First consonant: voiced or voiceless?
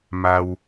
voiced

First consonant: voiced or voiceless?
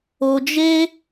voiced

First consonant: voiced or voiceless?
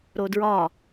voiced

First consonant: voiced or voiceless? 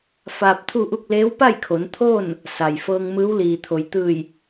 voiceless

